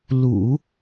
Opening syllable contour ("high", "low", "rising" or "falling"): low